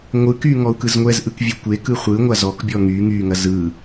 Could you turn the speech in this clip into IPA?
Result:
ŋʷ ɯ k y ŋ ɔ u̯ k ɯ z ŋʷ ɛ z ʔ ɯ k vʲ e kʷ e k ɯ χʷ ɯ ŋʷ a z ɔ k bʲ ɔ ŋ y ŋ y ŋ ɐ z ɯ

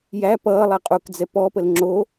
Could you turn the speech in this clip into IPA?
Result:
j æ p ʌː lˠ ɛ qʼ u k d͡z ɛ p ɔ p ə l ŋ͡ǁ o

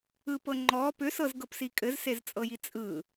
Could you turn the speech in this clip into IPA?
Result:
ɯ p ɤ ŋ͡ǃ ɔ p ʏ s ɤ z ɡ ɤ p s i kʼ ɘ z s e z t͡sʼ ɤ j i t͡sʼ ɯ

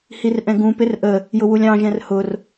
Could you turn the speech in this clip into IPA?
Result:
h i r ʔ ɛ̃ ɡ ũ p ɪ r ʔ ə | j ʊ w u lʲ ɑ̃ ʒ ɛ̃ r h ʊ r

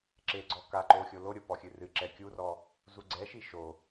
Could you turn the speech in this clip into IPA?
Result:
ǁ e ɡ͡ǀ ɔ k a ǃ o xʲ o l o ɾʲ o p ɔ xʲ ɨ r ɨ ǁ ɛ kʲ u r ɔ | z u ɡ͡ǀ ɛ ʃ i ʃ o

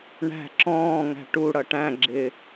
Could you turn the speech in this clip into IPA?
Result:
ɳ æ̤ ǁ ɔ̃ː ŋ æ̤ ʈ u ɽ ʌ ʈ æ̃ ɡ͡ǁ ɪ

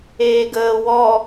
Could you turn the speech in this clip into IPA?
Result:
eː ɡ əː w ɔ

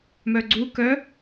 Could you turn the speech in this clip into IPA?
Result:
m œ ɡ͡ǀ u k œ

